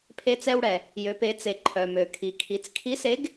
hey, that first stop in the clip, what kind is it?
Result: aspirated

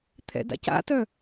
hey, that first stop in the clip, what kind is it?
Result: aspirated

